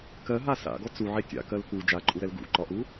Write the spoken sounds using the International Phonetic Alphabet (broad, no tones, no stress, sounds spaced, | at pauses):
k ɜ ɦ a s a̰ ɡ ɔ t͡s u ʕ e tʲ a̰ k ɜ l k u d͡ʒ a ǃʼ u ɾ ɛ l ɡ ṵ ǃ ɒ ʔ u